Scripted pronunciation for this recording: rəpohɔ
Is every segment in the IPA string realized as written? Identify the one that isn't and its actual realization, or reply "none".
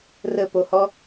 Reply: none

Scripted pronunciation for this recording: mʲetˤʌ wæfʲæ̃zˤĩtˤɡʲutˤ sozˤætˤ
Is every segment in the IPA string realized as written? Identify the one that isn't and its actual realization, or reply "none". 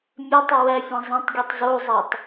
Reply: s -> z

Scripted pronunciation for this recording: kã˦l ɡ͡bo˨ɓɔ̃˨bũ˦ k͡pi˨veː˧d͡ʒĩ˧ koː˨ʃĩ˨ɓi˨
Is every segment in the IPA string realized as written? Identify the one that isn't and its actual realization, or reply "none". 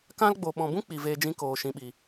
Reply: none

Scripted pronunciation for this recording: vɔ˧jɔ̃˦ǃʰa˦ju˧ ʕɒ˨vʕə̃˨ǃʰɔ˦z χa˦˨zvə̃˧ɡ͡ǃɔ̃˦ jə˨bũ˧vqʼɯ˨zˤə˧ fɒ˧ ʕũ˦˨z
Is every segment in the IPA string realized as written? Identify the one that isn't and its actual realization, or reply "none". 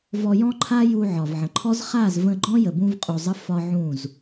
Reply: ɯ˨ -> u˨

